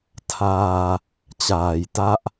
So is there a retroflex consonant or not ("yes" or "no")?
no